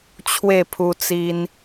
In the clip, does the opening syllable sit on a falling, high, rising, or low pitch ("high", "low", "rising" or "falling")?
falling